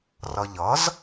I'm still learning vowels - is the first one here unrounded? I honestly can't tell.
yes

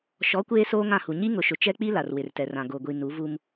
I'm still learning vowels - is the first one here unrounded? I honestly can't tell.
no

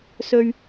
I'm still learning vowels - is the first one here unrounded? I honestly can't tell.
no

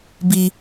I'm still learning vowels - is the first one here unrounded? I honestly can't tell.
yes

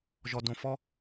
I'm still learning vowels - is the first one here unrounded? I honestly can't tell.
no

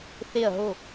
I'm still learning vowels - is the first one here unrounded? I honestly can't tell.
yes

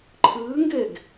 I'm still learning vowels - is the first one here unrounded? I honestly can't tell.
yes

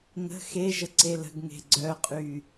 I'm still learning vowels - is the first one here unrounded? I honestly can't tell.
yes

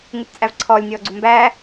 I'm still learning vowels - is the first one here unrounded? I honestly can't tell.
no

